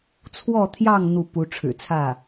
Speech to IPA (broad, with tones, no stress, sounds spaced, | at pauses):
t͡sʰ w ɔ˥˧ t̪ʰ j ɑ˥˧ ŋ n̪ u˥˩ p u˧˥ ʈ͡ʂʰ ɻ̩˨˩ t͡sʰ ä˥˩